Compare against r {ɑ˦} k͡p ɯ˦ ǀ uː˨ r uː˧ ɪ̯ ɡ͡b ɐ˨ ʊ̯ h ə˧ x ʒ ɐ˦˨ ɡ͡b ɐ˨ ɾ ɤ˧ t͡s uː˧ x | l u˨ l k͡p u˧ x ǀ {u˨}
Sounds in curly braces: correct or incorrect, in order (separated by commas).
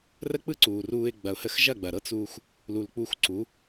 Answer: incorrect, incorrect